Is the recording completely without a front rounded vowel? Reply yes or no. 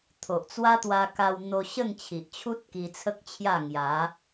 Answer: yes